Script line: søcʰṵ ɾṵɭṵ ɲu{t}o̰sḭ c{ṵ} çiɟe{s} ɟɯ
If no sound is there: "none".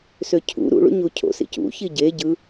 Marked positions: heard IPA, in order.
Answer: cʰ, ṵ, none

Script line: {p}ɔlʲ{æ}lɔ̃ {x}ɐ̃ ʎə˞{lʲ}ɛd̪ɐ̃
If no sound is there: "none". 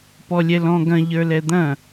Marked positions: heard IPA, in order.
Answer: p, ɛ, ɡ, l

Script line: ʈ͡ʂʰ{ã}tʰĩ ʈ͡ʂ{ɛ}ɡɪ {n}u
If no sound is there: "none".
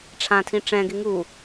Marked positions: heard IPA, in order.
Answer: ã, ɛ̃, ŋ

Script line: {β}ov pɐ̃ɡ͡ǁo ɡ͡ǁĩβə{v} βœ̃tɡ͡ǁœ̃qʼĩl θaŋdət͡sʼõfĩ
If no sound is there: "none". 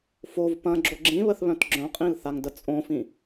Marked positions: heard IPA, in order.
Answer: f, θ

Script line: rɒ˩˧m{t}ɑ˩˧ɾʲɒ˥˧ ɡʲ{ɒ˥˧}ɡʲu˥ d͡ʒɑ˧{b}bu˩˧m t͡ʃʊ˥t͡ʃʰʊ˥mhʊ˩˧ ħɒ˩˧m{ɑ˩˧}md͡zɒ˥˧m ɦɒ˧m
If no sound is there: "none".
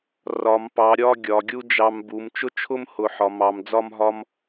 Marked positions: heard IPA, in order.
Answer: p, ɒ˩˧, m, ɑ˩˧

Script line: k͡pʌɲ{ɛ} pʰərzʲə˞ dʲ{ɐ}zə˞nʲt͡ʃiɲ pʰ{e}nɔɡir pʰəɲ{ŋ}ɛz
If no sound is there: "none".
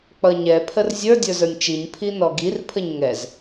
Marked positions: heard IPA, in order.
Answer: ɛ, ə˞, i, ŋ

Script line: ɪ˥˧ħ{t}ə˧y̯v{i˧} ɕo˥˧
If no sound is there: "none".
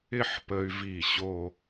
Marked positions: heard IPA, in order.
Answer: p, i˧˩

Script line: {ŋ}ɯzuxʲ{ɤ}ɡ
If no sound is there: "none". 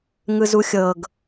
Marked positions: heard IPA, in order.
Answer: ŋ, ɤ

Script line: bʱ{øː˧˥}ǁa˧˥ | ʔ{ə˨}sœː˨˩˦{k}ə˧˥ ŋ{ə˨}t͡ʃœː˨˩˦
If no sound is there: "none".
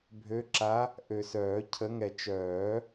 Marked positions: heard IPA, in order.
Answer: ø˧˥, ø˨, cʰ, ɛ˨

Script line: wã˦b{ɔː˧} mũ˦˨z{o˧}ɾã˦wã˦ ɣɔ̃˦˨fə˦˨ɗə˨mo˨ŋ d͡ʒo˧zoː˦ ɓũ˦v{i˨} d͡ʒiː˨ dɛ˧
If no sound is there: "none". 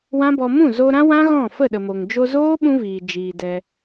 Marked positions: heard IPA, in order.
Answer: ɔ˧, o˧, iː˨

